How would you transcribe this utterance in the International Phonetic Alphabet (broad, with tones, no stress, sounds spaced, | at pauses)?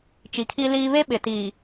t͡ʃ i˨˦ kʰ i˦ l iː˦ β e˦ ɓ ɪ˨ t iː˨